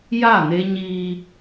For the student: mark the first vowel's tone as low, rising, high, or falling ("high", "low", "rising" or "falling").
falling